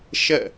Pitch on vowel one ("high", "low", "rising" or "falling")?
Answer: falling